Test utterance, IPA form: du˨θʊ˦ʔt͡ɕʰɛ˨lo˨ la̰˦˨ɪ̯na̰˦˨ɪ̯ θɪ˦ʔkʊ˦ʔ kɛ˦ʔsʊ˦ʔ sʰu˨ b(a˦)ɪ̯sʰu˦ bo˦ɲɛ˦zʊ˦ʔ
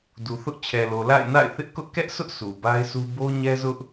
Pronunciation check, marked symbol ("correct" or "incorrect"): correct